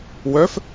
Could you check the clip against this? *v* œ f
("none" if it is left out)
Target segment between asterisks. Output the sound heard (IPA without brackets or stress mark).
w